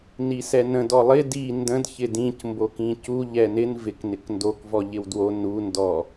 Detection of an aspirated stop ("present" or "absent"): absent